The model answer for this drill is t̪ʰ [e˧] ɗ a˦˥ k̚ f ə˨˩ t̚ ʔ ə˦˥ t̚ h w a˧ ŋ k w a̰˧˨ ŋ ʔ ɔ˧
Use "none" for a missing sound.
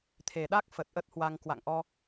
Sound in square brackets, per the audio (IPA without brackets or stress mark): e˨˩